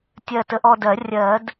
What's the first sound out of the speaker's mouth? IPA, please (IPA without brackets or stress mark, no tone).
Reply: tʲ